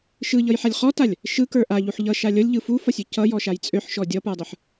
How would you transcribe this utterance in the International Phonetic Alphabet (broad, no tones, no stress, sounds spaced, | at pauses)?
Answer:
ʃ ɯ ʎ ʌ j ħ a lʲ χ ɔ t a lʲ | ʃ ɯ k ə˞ ʔ a ʎ u ħ ʎ ʌ ʃ a lʲ ʌ lʲ ʎ ɯ f u f ʌ sʲ ø c ʌ j ɔ ʃ a j t͡sʼ ø ħ ʃ ɔ dʲ ʌ p ə˞ dˤ ɯ ħ